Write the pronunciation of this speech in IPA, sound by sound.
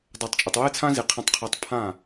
dˤa˨tˤt͡ʃʼə˨tˤwe˦ t͡sʰã˦zi˨qʰã˧tˤ qʰa˧tˤ pʰã˦˨

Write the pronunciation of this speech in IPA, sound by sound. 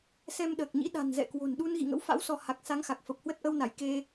sɛ˧mɗəː˨˩k̚ɲḭ˧˥ ɗa̤˨˩nzɛ̰˧˨kwo̤˨˩nɗu˧n ɣḭ˧˨ŋə̰˧˥wfa̰˧˥w sɔ˧ ha˨˩k̚ sa˨˦ŋxa˨˩k̚ fə˨˩p̚hwə˦˥t̚ʔə˧wna˧˩j ke˧

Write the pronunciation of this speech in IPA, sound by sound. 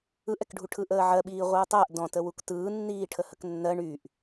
ɯʔɛkɖʱu ʈʰɯʔəːʕɜɓiː ʁʷɯːtˤəːʔ dɔ̃tə wuktɯːnːiː ʈʰəhəknːɜ ɳyʔ

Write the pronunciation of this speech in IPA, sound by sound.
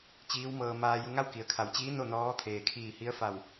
t͡ɕiː˧˥wmɤː˧ maː˧ju˧ ŋa˥˨wki˩˧ə̯kʰa˩˧wt͡ɕiː˧˥ no˥˨nɔː˧˥t̪ʰeː˩ kʰiː˧˩hi˧˥ə̯fa˧˩w

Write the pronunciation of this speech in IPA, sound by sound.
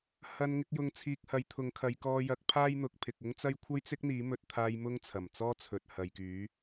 hɐ˧n ŋɪ˨˥k̚jʊ˧ŋt͡sʰiː˧k̚ hɐ˨˧jt̪ʰʊ˨˧ŋkʰɐ˨˧jkɔː˧ jɐ˨˥k̚ pʰaː˥jn̪ʊ˨˥k̚ pʰɪ˨k̚ʊ˥ŋt͡sɐ˥j kʷʰɐ˥jt͡sɪ˥k̚n̪iː˨˥ mɵ˧t̚t̪ʰaː˧j mʊ˥ŋt͡sʰɐ˨˩mt͡sɔː˥t͡sʰɵ˨t̚ hɐ˨jkyː˨˥

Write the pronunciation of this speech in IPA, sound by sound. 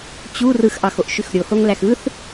t͡ɕu rɯxʔɑxoʔʃyx ɾʲohoŋlæx ɯθ

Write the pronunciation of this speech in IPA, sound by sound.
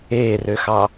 eːrøxɑ

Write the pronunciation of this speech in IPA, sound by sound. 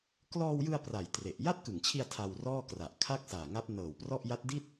klɔː˧wjɯ˧a̯ pra˨˩jtre˨˩ʔ ja˥˩t̚kɯ˨˩ŋt͡ɕʰi˧a̯ tʰa˧wrɔː˥˩kra˨˩ʔ kʰa˥˩k̚ saː˨˩ŋa˦˥p̚nɤː˨˩wprɔ˥˩ʔ ja˦˥t̚di˥˩t̚

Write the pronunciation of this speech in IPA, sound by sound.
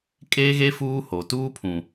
kʼeː˦ɣe˦ fuː˦ho˨ tuː˦pʰũ˨

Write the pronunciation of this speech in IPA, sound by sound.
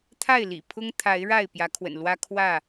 t̪ʰa˥˨ɪ̯lḭ˨˩pʰʊ˦ŋt̪ʰa˨˦ɪ̯ ɻa˥˨ɪ̯pjä˨˦kʰwə̰˨˩n lwä˦ kʰwä˥˨

